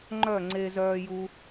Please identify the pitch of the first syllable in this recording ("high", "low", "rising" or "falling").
falling